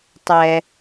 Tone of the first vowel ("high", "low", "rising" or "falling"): low